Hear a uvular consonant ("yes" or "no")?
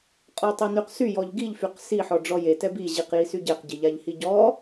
yes